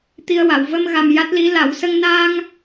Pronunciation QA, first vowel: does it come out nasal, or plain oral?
oral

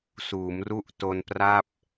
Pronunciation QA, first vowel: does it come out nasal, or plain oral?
oral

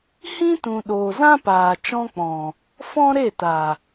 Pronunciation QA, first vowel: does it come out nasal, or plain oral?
nasal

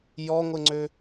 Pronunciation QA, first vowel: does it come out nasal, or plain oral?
oral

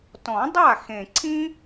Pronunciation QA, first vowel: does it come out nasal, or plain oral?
nasal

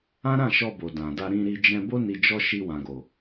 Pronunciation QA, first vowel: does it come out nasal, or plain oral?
nasal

